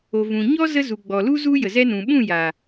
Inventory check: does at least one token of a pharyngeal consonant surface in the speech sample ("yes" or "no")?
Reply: no